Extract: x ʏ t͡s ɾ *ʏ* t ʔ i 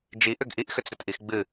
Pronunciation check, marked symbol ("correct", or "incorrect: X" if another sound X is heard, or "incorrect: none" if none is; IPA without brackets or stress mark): correct